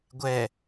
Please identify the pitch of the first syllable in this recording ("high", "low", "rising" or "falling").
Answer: low